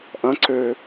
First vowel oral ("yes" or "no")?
no